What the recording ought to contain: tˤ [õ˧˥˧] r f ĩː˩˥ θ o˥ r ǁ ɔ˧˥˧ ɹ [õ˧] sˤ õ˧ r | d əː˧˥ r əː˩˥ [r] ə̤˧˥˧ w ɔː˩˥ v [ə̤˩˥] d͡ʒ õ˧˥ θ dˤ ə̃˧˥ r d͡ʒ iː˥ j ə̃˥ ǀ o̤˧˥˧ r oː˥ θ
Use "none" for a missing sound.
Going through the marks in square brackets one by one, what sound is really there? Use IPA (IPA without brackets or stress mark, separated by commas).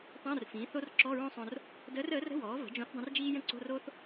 õ˧˥˧, õ˥, r, ə̤˩˥